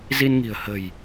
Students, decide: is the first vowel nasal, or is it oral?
oral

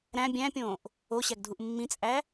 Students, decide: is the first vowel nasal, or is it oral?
nasal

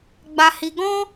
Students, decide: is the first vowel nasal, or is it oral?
oral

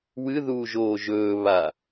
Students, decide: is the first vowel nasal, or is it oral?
oral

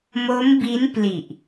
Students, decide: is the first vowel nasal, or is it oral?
oral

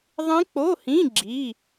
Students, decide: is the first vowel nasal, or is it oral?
nasal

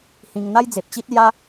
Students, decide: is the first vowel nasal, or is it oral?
nasal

